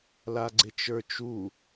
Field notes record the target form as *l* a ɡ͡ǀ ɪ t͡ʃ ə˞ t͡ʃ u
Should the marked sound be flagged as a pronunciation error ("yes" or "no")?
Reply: no